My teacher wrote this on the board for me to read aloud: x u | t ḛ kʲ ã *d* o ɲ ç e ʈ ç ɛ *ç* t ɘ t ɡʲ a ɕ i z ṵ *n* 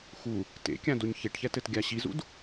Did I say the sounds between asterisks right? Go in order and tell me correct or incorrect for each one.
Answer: correct, incorrect: none, incorrect: d

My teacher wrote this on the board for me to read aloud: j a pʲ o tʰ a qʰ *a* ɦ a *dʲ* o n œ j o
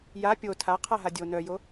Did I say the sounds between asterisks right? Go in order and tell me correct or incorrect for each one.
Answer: correct, correct

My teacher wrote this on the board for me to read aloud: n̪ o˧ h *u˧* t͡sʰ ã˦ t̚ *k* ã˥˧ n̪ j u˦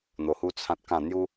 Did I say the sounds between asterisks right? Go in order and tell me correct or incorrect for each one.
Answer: incorrect: u˦, correct

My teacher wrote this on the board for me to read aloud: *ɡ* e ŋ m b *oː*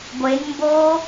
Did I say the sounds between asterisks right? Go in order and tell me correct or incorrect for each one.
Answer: incorrect: ɡʷ, correct

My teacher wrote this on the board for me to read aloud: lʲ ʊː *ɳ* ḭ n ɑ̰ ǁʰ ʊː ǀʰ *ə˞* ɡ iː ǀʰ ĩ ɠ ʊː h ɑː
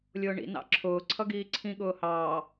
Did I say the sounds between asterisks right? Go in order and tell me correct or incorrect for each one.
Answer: correct, incorrect: ʌ

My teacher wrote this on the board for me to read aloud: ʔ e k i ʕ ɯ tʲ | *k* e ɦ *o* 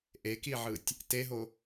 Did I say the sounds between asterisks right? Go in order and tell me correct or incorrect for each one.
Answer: incorrect: t, correct

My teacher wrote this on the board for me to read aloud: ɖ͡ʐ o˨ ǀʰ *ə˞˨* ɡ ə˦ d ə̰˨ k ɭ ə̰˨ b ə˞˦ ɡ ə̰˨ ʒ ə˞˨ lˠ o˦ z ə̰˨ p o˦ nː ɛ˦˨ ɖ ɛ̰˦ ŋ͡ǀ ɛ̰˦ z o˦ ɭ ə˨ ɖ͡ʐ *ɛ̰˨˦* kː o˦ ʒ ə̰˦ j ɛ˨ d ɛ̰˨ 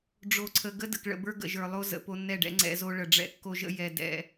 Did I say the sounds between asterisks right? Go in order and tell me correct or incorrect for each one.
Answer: incorrect: ə˨, incorrect: ɛ̰˦

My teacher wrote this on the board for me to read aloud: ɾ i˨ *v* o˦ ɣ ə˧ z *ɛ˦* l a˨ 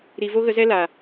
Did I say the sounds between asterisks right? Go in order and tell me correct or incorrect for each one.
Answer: correct, correct

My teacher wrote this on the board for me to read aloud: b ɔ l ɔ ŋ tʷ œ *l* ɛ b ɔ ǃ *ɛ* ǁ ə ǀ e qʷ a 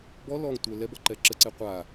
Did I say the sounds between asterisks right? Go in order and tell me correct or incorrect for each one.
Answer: correct, correct

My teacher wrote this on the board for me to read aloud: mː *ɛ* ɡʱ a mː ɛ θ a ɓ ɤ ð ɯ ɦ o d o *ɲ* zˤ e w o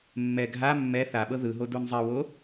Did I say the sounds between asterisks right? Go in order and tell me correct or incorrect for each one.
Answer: correct, incorrect: n

